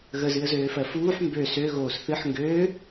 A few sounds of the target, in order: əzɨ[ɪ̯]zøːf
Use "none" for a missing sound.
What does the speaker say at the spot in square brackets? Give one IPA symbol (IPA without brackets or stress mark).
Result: ə̯